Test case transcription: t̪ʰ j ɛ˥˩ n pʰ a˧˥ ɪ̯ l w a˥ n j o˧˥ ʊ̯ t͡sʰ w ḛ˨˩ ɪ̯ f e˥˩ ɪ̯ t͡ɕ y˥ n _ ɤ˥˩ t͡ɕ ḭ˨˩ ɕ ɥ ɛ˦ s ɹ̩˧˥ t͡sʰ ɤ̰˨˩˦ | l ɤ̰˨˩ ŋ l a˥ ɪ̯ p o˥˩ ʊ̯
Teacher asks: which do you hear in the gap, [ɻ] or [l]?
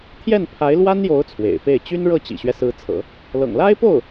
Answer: ɻ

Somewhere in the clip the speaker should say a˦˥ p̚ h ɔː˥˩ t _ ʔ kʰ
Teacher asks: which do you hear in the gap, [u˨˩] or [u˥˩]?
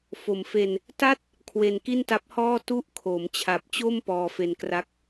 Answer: u˥˩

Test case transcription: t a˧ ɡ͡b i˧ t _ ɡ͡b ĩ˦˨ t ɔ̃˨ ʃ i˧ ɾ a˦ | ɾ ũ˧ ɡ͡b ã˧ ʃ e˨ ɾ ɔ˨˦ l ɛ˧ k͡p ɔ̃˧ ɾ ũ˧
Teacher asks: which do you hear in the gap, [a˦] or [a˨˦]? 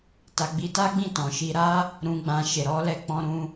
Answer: a˦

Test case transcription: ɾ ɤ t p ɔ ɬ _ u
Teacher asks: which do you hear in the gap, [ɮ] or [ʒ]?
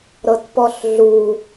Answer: ɮ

